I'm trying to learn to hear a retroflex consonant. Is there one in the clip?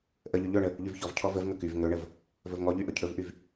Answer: yes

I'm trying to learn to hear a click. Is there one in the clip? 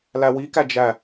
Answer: no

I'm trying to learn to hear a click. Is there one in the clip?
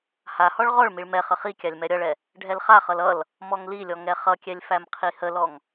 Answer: no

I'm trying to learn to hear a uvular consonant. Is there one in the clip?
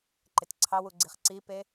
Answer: yes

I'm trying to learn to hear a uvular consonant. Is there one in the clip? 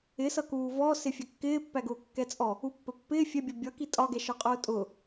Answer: yes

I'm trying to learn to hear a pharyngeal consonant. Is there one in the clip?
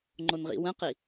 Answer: no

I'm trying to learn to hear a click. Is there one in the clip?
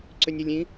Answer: yes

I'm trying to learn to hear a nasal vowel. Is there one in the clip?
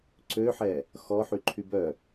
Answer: no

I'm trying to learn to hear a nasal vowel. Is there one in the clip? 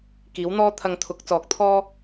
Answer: no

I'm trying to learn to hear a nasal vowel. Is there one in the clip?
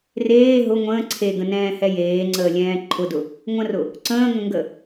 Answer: yes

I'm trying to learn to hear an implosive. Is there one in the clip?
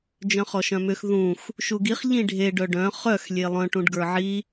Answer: no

